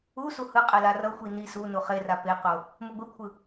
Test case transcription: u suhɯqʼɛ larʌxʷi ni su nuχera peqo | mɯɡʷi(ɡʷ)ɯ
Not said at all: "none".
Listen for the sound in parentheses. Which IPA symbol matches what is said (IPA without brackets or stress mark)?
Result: kʷʰ